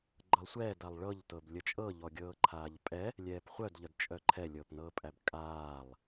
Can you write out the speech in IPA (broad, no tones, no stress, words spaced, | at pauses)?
ɡ͡ǃɤlˠsʷɛːdalˠ ɭɤʎ tɤblʲət͡ʃʼɤ ʎɔɡʲɤːǃʰaːʎpʼɛ | lʲɛːpχʷœdʎəd t͡ʃʼœǃʰɛlʲɤːp nɤːpʼæbkʼaːlˠ